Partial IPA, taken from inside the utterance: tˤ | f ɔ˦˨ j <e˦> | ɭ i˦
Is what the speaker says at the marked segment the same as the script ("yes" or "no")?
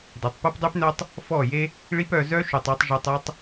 yes